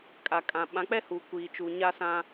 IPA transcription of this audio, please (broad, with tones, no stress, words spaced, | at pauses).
kʼa˨kʼã˨ɓã˨˦ k͡pɛ˦hu˨ kʷiː˨t͡ʃu˨ɲa˦sã˦